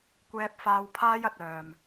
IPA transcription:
kʷɛː˥p̚faː˥w pʰaː˥jɐ˧t̚ œː˨m

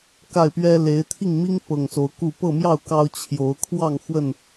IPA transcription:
ka˥˨ɪ̯pɥɛ˦ le˨˦ɪ̯t̪ʰi˥˨ŋmi˦ŋ pɤ˨˩ŋso˨˦ʊ̯ ku˥˨ pɤ˥˨mjɑ˥˨ʊ̯ kɑ˦ʊ̯ t͡ɕʰjo˨˦ʊ̯ kʰwɑ˥˨ŋ xwə˥˨n

